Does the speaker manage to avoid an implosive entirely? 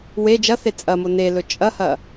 yes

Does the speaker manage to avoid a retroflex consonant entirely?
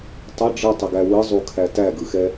no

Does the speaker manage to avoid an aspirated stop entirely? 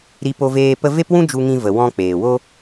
yes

